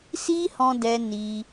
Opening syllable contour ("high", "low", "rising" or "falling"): high